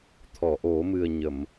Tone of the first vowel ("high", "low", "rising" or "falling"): low